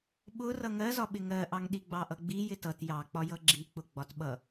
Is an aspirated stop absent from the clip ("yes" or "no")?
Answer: yes